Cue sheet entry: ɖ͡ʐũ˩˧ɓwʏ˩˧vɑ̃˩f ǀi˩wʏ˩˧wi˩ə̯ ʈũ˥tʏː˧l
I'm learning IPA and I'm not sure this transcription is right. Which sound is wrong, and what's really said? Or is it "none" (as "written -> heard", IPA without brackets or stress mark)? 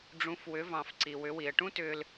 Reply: ɓ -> f